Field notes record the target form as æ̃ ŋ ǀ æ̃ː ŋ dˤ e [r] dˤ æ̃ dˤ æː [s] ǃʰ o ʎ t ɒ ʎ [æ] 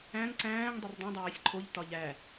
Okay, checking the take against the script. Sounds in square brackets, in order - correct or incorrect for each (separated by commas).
correct, incorrect, correct